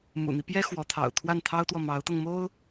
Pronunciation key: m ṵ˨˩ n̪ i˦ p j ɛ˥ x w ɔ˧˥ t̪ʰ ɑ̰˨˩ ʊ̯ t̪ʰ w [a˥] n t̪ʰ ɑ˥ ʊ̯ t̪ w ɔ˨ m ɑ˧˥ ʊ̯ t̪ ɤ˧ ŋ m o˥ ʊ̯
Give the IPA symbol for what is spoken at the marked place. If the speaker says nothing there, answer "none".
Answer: a˥˩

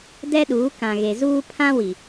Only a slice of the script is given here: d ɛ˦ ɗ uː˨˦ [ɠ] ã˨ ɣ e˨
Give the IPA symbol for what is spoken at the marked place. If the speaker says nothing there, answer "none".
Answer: k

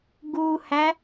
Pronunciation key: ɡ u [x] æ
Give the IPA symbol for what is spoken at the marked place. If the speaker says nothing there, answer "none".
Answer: h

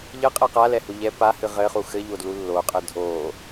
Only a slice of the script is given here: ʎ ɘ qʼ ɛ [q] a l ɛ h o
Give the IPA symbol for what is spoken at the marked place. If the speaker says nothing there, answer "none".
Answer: q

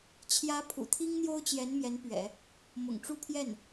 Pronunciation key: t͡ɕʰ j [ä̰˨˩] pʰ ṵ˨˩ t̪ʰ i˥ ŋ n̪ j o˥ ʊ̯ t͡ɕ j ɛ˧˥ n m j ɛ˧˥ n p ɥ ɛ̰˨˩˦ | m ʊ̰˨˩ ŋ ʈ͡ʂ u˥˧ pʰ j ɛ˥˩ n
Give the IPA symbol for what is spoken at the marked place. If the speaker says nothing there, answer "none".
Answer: ä˧˥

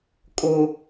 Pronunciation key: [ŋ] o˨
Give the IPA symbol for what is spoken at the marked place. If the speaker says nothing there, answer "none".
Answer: kʼ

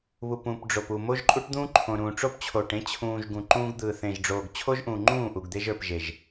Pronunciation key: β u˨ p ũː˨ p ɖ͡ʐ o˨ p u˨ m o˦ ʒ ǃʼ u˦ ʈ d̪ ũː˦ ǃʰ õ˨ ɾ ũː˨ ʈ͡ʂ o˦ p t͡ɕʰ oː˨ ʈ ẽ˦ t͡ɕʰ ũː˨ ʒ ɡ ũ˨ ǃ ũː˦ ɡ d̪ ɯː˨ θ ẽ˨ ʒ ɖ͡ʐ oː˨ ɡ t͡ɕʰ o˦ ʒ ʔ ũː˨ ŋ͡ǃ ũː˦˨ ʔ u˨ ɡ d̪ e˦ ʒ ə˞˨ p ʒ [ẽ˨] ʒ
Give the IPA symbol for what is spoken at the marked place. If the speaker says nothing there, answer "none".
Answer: e˨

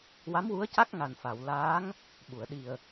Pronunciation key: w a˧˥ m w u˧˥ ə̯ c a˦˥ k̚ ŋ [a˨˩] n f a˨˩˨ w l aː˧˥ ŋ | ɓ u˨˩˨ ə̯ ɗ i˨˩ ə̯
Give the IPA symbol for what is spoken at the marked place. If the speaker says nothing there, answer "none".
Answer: a˨˩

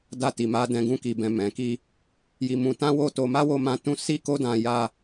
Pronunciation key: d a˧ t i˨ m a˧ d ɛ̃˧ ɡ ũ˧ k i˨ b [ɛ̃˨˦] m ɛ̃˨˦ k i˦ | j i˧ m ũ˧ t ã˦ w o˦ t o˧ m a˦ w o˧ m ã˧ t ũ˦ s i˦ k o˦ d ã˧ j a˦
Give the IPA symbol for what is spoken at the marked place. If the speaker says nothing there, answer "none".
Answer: ɛ̃˨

